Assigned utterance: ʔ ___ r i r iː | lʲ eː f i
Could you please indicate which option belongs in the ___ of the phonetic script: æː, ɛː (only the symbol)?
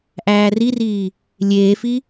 æː